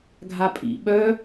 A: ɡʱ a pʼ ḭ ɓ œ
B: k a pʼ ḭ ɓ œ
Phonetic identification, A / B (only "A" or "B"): A